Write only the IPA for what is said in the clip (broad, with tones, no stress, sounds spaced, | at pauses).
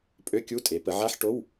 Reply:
pʼ ø˧˥˧ kʲ u˧˥˧ tʼ e˩˧ p ə˩˧ ʕ a˧˥˧ ħ ʈ o˧˥˧ w